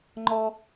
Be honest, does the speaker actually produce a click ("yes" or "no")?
yes